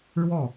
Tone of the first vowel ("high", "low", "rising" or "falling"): falling